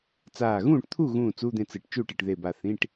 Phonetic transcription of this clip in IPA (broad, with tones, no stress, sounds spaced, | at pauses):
t͡s aː˧˩ ɣ ũː˥˩ ʈ t̪ʰ u˥˩ ɣ ũː˥˩ t͡s u˧˥˧ d̪ ẽ˥˩ t͡s ɨ˧˩ ʈ t͡ʃ u˥˩ ʈ ɨ˧˩ ʈ ð e˧˩ b a˧˩ θ ĩ˧˥˧ ʈ